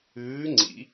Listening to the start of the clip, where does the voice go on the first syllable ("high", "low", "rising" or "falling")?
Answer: rising